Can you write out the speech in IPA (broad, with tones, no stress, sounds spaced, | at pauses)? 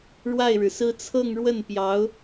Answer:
ɻ w a˥˩ ɪ̯ ɻ ɻ̩˩ s ɹ̩˥ t͡sʰ ɤ˥˧ ŋ ɻ w ə˥˩ n p j ɑ˧˥ ʊ̯